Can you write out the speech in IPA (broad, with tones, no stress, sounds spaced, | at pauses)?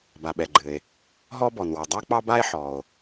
b a˩ ɓ ɛ˩ ɡ͡ǃ ɘ˩ e̯ | ɦ ɔ˥ b ɔ˩ n w ɔ˩ dˤ a˥ k͡p ɑ˥ b a˥ e̯ ħ ɔ˩ o̯